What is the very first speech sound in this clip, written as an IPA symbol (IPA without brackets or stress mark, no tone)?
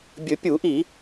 bʲ